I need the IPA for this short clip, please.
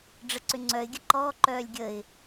ɖ͡ʐ ə ǀ ʏ ŋ͡ǀ œ ɪ̯ ɡʲ ə ǃ ɔː ǃ œː lʲ ɡʲ ə ɪ̯

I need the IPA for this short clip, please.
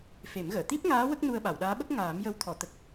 f e˨˩˦ m ɣ əː˨˩˨ t̪ i˦˥ p̚ ŋ aː˧˥ w ə˦˥ k̚ n u˧ ə̯ ɓ a˨˩˨ w ɗ aː˧˥ ɓ ə˦˥ k̚ ŋ aː˨˩˦ m j ə˧˥ w t̪ʰ ɔ˨˩˨ t̪ ə˨˩ k̚

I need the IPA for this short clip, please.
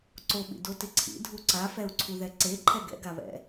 ǀ o ɓ ḭ d o t ɪ ǀʰ ḭ dʱ u ǀ a f ɛ u̯ ǀʰ u ð ɛ ǀ e ǃʰ ɛ ɡ ɛ̰ ɡ a β ɛ̰

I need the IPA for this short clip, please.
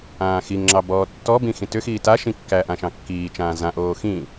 ãː x i ŋ ŋ͡ǁ ɑ b ɔː tː ɔ b ĩ x ĩ t ʏ x iː t a ʃ ĩ kː æ ʔ ã ʃ ɑ̃ kː iː t͡ʃ ãː z ã ʔ oː x ĩ

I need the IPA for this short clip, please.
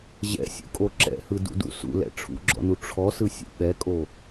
ʑ ɛ̰ sʲ ṵ kʼ o ǁ ɛ̰ h ɯ d ṵ d ṵ s ṵ l ɛ̰ ʈ͡ʂʰ ṵ ɡ͡ǁ ɔ̰ n u ʈ͡ʂʰ ɔ s ɯ sʲ ṵ ɓ ɛ kʼ o

